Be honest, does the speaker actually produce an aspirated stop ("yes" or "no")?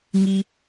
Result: no